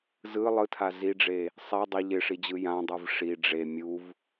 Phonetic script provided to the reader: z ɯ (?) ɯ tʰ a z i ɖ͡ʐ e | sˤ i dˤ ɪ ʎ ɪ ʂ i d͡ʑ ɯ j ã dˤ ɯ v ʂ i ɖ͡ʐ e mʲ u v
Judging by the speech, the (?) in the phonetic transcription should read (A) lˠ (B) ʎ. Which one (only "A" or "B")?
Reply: A